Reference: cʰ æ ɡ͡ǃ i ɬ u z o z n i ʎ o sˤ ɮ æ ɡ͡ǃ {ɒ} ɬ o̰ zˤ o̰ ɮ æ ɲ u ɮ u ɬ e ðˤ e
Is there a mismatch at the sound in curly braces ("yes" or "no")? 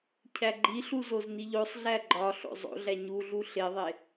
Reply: no